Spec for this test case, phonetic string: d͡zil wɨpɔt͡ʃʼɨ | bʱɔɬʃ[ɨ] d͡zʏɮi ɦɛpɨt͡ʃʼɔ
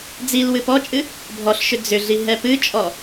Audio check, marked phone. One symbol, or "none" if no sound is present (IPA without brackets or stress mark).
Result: ʏ